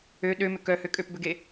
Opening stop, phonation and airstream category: implosive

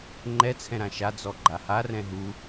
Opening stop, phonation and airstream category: click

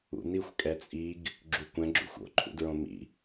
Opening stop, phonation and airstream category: ejective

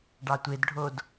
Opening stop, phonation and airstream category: plain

